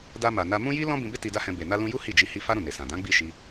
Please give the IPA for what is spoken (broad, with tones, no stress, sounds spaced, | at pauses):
d a˧ m a˨ n a˧ m ũ˦ j i˦ l ɔ̃˦ b ĩ˧ b e˦ t i˧ d a˦ h ɛ̃˧ b e˨ n a˧ l ũ˧ j u˦ h i˦˨ d͡ʒ i˧ h i˧ f a˦ ɾ ũ˦˨ n e˨ s ã˨ d ã˨˦ ɡ͡b i˦˨ ʃ i˧